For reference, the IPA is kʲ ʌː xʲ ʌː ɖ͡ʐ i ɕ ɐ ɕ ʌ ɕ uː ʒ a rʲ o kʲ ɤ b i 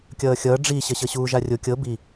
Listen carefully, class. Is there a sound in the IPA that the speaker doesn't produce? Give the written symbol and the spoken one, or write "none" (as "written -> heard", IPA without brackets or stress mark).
none